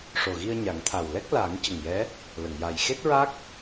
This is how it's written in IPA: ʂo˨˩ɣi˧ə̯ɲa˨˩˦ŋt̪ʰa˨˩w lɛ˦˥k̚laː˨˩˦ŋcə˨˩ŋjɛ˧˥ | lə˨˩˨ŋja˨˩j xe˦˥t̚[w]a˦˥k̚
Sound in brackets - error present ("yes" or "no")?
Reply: yes